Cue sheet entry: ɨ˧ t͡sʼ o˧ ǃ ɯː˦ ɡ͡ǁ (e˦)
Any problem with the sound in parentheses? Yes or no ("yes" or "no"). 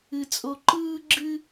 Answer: yes